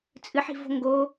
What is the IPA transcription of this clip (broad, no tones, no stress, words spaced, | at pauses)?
t͡sʼɨħi̤vo̤ ŋɡo